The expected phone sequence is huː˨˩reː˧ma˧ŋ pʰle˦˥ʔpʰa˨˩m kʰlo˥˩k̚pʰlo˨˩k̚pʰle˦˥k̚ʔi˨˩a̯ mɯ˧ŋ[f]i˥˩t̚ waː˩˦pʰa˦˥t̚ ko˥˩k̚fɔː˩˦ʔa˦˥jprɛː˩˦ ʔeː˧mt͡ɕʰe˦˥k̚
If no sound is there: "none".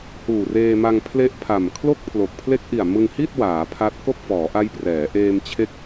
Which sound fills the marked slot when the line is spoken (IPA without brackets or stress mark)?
h